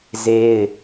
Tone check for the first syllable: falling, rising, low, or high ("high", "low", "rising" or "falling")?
high